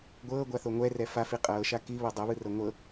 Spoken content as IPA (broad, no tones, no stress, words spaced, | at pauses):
ɡʷɤːɡʷaθo ŋʷɛrɛ fafi qʼɤːʃa kiβɤ dˤɤβɯrɤ ŋʷɤ